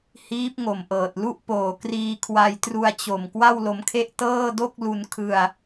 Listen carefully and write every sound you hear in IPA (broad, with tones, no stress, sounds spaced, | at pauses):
h iː˦˥ p̚ ŋ o˨˩ m ʔ ɤː˨˩ t̚ l u˥˩ ʔ p oː˨˩ k r iː˧ kʰ w a˧ j t r u˧ a̯ t͡ɕ o˨˩ m k w a˥˩ w l o˧ m kʰ e˥˩ ʔ t ɤː˥˩ d o˥˩ k̚ l u˧ n kʰ ɯ˧ a̯